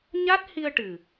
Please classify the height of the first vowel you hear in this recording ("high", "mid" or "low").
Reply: low